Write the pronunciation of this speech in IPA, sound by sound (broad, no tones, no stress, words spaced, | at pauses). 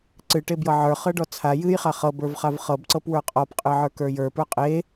ǀɨʈebjɤ ʕə˞χɤɖɔ t͡sʰa jɨjχa χɤbə˞vχav χɤbǀɤpwə˞ qʼɔpqʼɨʕə˞kə˞ jə˞pə˞ qʼe